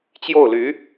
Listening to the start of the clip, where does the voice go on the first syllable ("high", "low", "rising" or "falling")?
falling